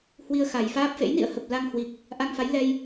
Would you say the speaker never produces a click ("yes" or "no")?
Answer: yes